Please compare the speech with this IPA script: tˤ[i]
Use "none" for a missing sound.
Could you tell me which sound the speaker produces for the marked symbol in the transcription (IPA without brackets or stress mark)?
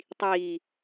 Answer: iː